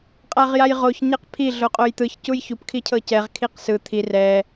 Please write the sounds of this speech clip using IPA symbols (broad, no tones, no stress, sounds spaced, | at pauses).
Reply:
qʼ a ʁ j a j ʁ o ç ɲ ɛ q pʰ i ɮ o qʼ o j t̪ ɯ ç c u j ç u p kʰ i cʰ ɤ c ɛ ʁ kʰ i q s ɯ t̪ʰ i r ɛ